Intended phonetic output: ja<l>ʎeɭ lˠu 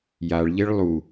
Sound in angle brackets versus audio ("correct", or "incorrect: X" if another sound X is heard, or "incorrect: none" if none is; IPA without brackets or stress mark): incorrect: ɭ